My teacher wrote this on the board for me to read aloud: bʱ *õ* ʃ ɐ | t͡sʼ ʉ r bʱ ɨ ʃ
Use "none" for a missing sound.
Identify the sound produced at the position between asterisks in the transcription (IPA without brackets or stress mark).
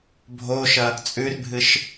o